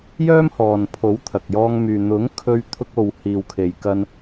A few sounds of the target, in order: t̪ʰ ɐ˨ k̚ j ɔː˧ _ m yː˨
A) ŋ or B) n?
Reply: A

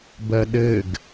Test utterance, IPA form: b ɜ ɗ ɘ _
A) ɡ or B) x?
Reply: A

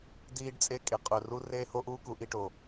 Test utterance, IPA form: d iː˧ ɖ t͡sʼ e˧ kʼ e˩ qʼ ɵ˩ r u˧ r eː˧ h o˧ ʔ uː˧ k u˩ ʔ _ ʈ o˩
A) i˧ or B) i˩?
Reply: A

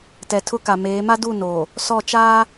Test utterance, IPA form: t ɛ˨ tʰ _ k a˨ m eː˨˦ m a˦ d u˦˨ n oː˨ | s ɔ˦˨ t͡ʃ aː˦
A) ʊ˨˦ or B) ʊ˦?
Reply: B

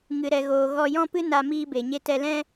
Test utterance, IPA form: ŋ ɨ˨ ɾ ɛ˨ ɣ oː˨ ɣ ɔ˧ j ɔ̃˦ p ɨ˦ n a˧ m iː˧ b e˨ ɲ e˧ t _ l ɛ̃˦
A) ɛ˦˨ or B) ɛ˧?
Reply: B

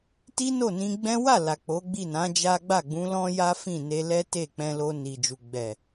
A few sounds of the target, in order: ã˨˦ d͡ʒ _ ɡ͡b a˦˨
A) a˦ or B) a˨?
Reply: A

